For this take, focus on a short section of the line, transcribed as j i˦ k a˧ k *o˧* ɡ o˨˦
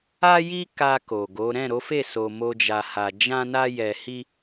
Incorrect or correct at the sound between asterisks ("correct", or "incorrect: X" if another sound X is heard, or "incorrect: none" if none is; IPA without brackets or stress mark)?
incorrect: o˨